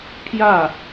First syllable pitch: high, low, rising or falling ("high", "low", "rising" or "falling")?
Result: falling